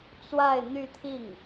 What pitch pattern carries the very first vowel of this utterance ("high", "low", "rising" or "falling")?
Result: falling